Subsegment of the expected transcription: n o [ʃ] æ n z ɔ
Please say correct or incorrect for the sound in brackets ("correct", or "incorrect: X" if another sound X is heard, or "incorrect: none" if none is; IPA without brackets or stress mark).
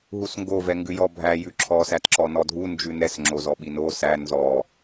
incorrect: s